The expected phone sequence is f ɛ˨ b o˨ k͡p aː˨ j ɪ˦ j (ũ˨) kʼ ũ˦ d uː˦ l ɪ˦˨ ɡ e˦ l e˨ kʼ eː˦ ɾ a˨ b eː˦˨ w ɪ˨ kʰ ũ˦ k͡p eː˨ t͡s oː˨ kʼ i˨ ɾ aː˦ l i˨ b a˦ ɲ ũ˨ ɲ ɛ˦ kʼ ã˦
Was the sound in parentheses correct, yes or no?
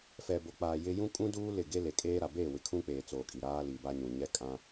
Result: no